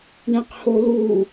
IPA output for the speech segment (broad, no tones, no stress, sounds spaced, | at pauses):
ɳ ɛ̃ q h o l u